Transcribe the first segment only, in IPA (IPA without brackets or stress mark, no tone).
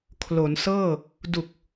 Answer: kʰ